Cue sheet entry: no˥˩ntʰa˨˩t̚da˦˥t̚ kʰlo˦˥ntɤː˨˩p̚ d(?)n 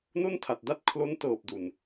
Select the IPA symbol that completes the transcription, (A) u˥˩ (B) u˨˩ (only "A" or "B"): B